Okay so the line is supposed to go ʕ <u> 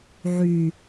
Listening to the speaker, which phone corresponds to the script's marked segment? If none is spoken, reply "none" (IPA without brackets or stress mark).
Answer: y